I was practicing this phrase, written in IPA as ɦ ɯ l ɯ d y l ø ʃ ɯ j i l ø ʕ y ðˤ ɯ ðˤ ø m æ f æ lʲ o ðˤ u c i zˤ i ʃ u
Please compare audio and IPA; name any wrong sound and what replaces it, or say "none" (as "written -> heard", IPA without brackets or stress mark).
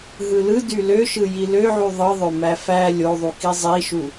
c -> k